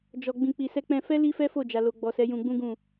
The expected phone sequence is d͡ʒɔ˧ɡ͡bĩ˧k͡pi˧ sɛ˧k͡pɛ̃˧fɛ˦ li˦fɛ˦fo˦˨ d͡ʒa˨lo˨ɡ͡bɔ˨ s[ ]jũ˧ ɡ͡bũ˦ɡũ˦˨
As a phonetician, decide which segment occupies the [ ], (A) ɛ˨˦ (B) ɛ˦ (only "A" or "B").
A